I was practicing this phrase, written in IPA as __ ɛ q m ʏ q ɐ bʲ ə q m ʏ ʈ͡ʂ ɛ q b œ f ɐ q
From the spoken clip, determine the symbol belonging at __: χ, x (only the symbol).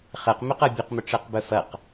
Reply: χ